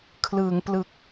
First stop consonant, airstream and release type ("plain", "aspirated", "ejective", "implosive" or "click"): aspirated